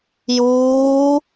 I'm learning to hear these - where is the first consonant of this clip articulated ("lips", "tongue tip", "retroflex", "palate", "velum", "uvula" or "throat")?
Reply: palate